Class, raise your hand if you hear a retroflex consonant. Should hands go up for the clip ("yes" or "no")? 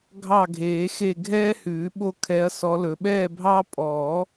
no